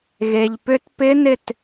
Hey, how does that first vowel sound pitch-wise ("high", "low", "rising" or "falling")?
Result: low